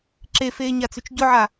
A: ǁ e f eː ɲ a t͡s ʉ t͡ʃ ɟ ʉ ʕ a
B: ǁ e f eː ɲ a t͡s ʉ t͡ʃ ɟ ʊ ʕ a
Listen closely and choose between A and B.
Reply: B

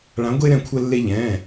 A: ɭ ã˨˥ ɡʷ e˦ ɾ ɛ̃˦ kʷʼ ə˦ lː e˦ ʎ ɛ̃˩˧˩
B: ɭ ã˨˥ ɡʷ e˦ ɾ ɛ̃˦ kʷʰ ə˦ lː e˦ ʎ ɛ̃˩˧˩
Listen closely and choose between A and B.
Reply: B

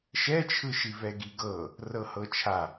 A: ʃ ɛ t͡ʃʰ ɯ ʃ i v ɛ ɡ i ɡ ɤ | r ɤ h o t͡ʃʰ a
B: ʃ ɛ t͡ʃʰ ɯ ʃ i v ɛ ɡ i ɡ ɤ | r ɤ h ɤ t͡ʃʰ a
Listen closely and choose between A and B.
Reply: B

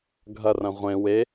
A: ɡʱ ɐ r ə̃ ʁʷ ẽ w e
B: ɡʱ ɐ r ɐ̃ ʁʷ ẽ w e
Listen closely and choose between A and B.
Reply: B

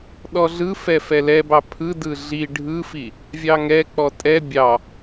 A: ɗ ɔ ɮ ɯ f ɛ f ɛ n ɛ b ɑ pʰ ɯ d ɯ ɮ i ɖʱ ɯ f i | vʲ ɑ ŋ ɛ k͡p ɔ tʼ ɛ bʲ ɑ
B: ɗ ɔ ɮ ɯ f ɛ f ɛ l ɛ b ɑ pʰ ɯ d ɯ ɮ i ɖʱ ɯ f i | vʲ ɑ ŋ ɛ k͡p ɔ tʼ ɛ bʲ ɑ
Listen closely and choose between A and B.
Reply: B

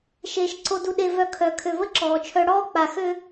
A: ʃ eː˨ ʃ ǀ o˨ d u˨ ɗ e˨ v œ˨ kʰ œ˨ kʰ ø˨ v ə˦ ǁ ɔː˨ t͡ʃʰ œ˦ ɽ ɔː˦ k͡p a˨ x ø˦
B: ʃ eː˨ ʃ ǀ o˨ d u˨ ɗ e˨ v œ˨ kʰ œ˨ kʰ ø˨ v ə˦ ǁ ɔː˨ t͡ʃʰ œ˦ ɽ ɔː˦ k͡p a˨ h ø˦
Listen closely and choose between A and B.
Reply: A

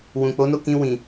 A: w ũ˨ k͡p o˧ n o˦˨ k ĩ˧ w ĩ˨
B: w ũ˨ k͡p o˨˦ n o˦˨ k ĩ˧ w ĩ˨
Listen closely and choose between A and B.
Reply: B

